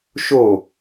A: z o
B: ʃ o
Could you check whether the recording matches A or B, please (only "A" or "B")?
B